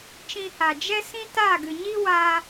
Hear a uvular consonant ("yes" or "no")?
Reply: no